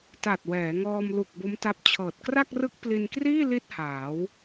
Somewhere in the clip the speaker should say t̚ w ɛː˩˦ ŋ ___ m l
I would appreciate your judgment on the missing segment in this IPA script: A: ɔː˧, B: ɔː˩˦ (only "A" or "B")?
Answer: A